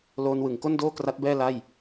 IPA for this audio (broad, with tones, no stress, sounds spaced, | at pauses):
l oː˧ n w ɯ˨˩ ŋ k o˥˩ n d oː˥˩ k r a˦˥ t̚ b ɛː˥˩ l a˥˩ j